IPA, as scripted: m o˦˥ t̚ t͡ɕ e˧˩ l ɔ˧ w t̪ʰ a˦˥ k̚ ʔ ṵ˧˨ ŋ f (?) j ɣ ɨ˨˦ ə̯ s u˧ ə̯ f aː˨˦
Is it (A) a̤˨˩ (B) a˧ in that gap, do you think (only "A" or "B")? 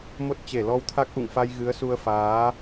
B